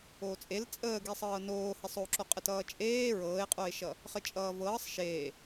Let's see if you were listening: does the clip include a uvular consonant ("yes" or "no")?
yes